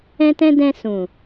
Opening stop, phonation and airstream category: plain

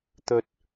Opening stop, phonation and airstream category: plain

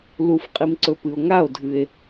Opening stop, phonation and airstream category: ejective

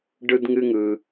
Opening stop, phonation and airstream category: plain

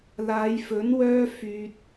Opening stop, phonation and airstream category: plain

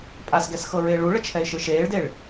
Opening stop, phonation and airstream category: ejective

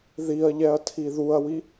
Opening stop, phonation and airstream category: aspirated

